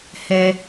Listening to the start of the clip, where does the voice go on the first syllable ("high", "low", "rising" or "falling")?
high